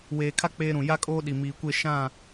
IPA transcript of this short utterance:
weː˨kʰa˦ k͡peː˦ɾũ˨ ja˦kʼoː˦ ɗi˨miː˨kʷe˦˨ ʃã˦˨

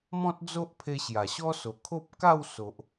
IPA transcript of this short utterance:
mɔ̃˦t̚d͡zo˦ʔpʰe˧ ɕja˨˩ɕɔ˦so˨˩kʰo˦p̚ ka˥˧w so˨ʔ

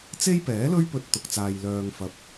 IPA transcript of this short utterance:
t͡se˥jpɛː˨˥lɵ˥ɥ pɵ˥t̚t̪ʊ˧k̚t͡saː˧j lœː˧ŋ fɐ˧p̚

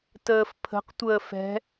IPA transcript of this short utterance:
təːfpʰə̤q tʷəːfɛ̤

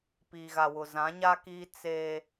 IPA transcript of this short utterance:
piː˨ɣa˨wʊ˨ zã˨˦ɲa˦kiː˦ t͡seː˦

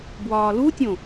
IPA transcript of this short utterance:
bwɒːlutʲõ

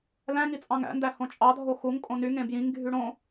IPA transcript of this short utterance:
læ̃ŋi t͡sʼɑ̃ŋæ̰ndæ hõt͡ʃʼɑdʱo xuŋ kʼõnyŋẽ bjĩŋɡʱy ɽõ

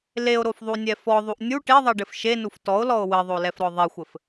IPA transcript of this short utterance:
leo̯ɾofðˤunʲɛ fɔðˤuʔ nʲu ʈeðˤɛɖɘf ʃenuf tɔo̯lɔo̯ wɘðˤolɛfɾɔ ðˤexʷɘf

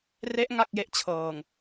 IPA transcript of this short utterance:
re˦˥ʔ ŋa˥˩k̚je˥˩ʔt͡ɕʰɤː˨˩ŋ

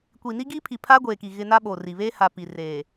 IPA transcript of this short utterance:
kʷi˨ ni˦ɡiː˦pʰi˨pʰaː˦ ɡʷeː˨ki˨ ɣɪ˦ na˦ɓo˨ri˨ βeː˦ha˨ pi˨reː˨

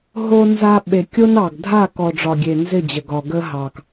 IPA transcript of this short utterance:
ɦo˦ nza˦ ɓe˨kʲo˦nɑ˨ɡ dʱa˦˨ kɔ˨ɖ͡ʐɒ˨ɡʲe˨ nzɪ˦˨d͡ʑə˨ɡɒ˨ ɡə˦ɦɑ˨k

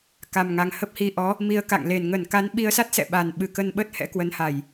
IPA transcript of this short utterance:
ka˨˩mŋa˨˩ŋ hə˦˥p̚hi˧ʔɔ˨˦ | mi˧ə̯ka̰˧˨ŋle˨˩n ŋə˧˩nka˨˦nɓi˧ə̯sa˦˥t̚ sɛ̰˧˨ɓa˨˩nɓɨ˨˩ kə˧nɓə˦˥t̚hɛ̰˧˥ kwə˨˦nha˧˩˨j

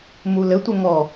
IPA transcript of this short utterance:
mulɘ tʷɘŋɔ

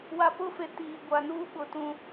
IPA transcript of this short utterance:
wa˨pʊ˦˨fe˨ tiː˨ɡʷa˨nuː˦ ɓʊ˨tũ˦

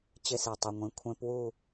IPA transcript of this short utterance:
t͡ɕɪ˦˥si˩tˤɪ˩˧˩ŋʷĩ˩˧˩ kʷʰẽ˦˥pwu˥˨

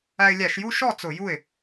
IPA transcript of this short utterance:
æ˧ɪ̯lʲæ˧˩˧ʃju˥˧ ʃɔ˥˩ t͡sʊ˧˩˧ju˥˩ɪ̯

